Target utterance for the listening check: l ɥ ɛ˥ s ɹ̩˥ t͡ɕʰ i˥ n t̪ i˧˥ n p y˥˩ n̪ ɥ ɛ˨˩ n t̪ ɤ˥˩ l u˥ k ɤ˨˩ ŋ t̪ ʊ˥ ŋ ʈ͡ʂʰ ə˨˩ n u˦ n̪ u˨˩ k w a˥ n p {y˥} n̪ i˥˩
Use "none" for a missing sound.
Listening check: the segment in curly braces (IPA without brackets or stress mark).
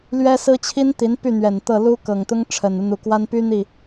y˥